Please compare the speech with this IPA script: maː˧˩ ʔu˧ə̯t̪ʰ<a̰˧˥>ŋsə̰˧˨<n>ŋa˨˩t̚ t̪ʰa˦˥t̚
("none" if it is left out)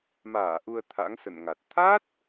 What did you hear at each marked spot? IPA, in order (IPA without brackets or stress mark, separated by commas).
a̰˧˥, n